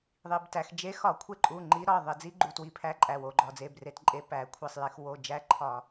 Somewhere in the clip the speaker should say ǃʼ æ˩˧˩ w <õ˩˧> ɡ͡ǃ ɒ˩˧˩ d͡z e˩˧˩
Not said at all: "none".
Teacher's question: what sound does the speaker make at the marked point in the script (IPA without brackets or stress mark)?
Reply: o˩˧